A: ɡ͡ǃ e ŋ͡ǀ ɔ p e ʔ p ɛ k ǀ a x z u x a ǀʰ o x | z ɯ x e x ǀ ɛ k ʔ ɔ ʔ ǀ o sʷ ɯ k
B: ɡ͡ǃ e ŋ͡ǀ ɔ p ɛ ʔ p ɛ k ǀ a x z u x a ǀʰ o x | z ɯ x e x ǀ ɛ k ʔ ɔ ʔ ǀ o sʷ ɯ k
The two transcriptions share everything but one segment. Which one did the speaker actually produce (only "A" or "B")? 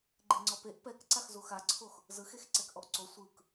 A